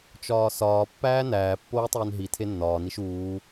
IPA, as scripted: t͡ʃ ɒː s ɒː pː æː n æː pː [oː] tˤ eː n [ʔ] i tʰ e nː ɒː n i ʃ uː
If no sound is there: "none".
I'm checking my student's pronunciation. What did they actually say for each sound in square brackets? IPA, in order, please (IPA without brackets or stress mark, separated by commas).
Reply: oː, ɦ